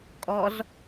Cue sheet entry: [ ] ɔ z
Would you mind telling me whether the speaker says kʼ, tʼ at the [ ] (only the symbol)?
kʼ